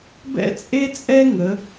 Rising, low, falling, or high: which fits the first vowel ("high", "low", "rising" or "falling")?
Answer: high